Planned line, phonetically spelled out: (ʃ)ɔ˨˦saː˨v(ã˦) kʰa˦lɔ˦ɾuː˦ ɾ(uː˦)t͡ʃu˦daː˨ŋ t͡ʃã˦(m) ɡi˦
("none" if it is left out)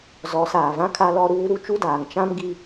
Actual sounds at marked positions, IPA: z, ã˦, u˦, m

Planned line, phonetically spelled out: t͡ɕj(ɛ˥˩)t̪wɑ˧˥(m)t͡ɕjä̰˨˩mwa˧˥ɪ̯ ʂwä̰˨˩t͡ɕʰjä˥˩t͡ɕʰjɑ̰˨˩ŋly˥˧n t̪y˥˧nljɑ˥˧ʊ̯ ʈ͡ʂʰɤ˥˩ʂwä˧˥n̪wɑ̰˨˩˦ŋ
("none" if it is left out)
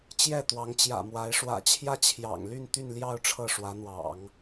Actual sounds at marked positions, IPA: ɛ˥˩, ŋ

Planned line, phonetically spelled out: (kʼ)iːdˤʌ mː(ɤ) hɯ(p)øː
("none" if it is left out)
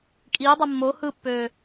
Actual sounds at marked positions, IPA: kʼ, o, pː

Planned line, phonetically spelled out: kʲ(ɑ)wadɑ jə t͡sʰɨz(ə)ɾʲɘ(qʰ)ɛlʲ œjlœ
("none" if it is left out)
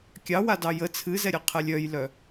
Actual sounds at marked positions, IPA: ɑ, ɛ, qʰ

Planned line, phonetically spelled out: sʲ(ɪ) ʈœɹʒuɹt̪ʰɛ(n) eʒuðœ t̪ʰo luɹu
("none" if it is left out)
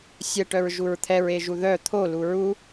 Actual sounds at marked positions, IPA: ə, ɹ

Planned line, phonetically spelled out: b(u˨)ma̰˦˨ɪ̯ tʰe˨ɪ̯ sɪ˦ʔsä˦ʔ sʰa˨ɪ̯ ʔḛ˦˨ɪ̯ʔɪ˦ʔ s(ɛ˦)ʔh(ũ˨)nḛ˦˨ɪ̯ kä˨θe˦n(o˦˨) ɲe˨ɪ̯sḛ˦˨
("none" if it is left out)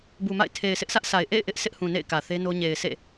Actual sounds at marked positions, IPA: u˨, ɪ˦, ũ˨, o˦

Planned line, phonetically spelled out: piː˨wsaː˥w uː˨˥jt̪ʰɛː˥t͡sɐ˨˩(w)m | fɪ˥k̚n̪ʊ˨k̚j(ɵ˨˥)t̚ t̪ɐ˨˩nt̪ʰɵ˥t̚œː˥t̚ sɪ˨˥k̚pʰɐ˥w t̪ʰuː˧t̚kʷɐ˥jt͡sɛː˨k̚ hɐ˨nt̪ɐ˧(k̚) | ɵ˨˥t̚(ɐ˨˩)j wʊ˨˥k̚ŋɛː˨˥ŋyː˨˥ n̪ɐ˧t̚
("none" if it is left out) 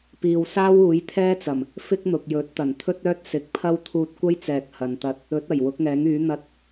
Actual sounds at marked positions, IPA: none, ɵ˨˥, t̚, ɐ˨˩

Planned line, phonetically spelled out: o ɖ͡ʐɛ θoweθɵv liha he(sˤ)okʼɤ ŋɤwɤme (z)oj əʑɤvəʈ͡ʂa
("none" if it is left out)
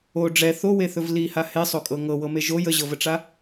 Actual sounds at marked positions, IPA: sˤ, ʒ

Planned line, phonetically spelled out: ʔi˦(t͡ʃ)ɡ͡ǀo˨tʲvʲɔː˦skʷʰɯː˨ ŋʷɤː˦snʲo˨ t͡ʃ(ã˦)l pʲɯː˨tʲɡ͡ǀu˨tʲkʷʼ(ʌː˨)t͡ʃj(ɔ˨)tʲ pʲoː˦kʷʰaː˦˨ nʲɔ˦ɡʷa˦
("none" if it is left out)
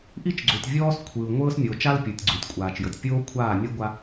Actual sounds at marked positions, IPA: t͡ʃ, a˦, aː˨, ɤ˨

